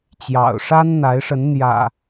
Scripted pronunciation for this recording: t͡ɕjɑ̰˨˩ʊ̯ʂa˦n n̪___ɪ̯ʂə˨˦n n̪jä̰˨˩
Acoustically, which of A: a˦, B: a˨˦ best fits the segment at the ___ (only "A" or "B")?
B